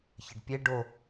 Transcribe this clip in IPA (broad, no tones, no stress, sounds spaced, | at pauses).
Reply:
ç ə ɖ pʲ e ɖ o